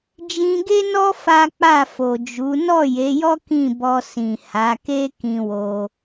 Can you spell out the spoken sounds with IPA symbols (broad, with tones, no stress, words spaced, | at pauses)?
d͡ʒĩ˧ɡe˦nɔ˦ fa˦k͡pa˦˨ fo˨ d͡ʒu˨˦ nɔ˦˨je˨˦jɔ˦ kĩ˦˨bɔ˧ sĩ˨ ha˨˦ke˦ kĩ˧wo˧